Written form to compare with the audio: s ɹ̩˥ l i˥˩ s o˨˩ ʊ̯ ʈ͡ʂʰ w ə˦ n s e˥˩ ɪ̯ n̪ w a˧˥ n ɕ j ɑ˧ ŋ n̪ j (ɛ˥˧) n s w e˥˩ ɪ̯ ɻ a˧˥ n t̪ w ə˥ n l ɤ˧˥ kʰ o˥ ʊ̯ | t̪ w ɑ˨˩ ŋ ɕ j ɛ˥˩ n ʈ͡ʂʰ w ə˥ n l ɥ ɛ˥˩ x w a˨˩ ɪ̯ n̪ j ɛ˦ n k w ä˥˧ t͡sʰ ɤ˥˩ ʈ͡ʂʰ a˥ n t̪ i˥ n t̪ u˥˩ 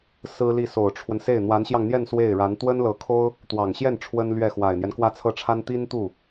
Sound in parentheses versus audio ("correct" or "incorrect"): correct